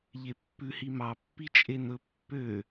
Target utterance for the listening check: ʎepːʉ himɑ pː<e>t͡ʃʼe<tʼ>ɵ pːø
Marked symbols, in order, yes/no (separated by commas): no, no